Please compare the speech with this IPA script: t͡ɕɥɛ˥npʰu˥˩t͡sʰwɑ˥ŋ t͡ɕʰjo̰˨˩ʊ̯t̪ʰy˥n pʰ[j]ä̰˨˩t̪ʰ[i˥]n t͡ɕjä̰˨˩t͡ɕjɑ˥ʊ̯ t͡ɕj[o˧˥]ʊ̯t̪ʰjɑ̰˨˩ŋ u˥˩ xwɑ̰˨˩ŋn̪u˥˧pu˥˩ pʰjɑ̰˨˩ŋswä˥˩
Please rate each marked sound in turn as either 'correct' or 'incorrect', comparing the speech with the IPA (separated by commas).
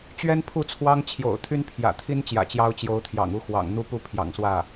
correct, correct, correct